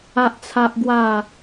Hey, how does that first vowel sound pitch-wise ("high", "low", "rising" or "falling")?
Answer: high